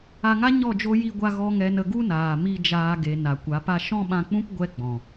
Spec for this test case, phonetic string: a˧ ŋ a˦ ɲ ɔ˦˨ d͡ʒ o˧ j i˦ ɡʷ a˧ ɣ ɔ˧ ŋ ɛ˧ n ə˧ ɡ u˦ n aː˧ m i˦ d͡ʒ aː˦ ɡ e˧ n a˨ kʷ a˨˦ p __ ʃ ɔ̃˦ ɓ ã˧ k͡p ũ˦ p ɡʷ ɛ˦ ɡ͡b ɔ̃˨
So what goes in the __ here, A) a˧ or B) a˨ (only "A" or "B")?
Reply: A